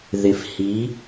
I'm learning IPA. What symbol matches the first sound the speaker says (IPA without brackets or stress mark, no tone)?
ð